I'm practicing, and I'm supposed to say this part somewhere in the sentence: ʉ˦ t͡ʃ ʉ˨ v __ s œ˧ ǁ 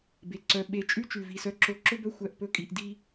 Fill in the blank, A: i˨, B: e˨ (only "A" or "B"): A